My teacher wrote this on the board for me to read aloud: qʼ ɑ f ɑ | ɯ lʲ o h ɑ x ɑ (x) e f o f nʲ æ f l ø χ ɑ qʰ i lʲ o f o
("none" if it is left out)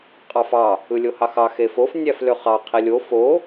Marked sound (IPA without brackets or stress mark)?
x